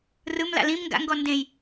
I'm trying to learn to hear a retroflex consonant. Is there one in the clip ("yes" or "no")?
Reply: no